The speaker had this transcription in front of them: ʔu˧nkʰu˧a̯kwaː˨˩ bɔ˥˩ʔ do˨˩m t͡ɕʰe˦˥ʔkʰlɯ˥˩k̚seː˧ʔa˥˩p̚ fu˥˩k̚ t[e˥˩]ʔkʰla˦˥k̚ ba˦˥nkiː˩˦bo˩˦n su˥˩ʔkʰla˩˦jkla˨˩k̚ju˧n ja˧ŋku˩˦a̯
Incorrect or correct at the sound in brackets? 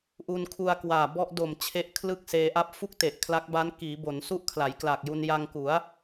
incorrect: e˨˩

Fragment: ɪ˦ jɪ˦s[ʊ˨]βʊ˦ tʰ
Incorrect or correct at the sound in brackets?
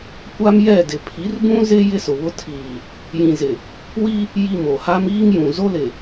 correct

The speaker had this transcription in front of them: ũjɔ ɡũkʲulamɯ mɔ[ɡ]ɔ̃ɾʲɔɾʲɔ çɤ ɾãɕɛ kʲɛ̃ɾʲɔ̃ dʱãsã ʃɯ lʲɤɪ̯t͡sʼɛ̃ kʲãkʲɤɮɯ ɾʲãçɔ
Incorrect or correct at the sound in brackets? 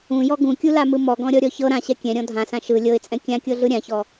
correct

